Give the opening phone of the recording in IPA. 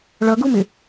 ɭ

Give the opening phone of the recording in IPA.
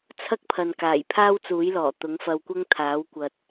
t͡sʰ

